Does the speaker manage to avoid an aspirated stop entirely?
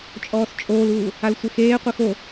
yes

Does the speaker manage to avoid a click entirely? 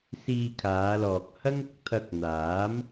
yes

